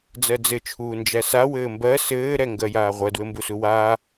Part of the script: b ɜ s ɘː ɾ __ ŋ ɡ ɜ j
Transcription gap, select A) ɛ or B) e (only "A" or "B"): A